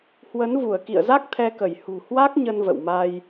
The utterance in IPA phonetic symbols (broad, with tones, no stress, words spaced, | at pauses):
hwə˨˦nvu˧˩ə̯kḭ˧˨ə̯za˦˥k̚ t̪ʰɛ˧kə˧˩j hṳ˨˩hwa˦˥k̚ ɲə˧nvə̰˧˨wma˧j